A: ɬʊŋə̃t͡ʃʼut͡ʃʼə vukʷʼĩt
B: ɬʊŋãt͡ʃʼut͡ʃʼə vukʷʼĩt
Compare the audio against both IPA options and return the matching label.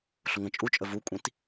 A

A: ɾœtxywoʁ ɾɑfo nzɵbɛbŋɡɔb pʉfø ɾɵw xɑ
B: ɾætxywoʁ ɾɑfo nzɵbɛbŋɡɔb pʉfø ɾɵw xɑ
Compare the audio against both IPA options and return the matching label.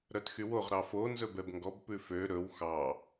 A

